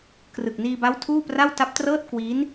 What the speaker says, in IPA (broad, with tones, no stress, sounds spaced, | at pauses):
k r ɯ˨˩ k̚ n iː˧ b a˦˥ w tʰ uː˥˩ p r a˥˩ w t a˦˥ p̚ t r ɤː˥˩ t̚ k w iː˦˥ n